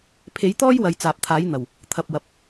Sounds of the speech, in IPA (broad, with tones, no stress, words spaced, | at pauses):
pʰe˨˥jt̪ɔː˥jwɐ˨j t͡saː˨p̚t̪ʰaː˨˥jn̪ɐ˨˩w | t̪ʰɐ˨p̚wɐ˨p̚